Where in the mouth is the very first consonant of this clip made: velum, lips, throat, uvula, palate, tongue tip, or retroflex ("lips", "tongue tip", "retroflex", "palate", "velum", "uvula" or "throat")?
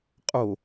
uvula